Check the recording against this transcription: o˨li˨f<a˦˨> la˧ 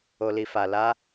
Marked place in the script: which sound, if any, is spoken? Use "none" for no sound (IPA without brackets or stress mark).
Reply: a˨